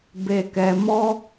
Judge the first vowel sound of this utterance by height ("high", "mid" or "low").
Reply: mid